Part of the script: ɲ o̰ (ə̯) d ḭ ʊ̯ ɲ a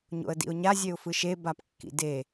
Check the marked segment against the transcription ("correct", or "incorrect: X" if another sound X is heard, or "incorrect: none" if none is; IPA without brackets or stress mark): correct